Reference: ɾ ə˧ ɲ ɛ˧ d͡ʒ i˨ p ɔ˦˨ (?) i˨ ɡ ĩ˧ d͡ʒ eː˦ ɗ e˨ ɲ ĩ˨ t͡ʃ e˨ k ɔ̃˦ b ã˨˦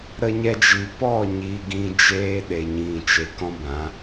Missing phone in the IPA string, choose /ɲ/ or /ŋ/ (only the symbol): ɲ